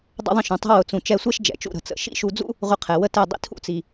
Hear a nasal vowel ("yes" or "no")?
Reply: yes